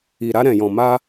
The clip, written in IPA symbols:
i˨ ɾ a˧ ɾ ɛ̃˨ j ɔ̃˨ m a˧

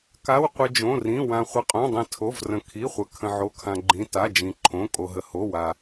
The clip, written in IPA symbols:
k a˩˧˩ w qʷ ɪ˩ d͡ʒ õ˩˧˩ r ĩ˩˧˩ w ã˩ χʷ ɪ˩ qʼ õ˩˧˩ dˤ ĩ˩ tʰ o˩˧˩ v r ə̃˩ kʰ i˩˧˩ χʷ ə˩ kʰ ə̃˩ ʕ o˩˧˩ kʰ ã˩ ɡ͡ǃ ĩ˩˧˩ t a˩˧˩ d͡ʒ ĩ˩ ǃʰ õ˩˧˩ kʼ o˩ ɦ ə˩ h o˩˧˩ w a˩

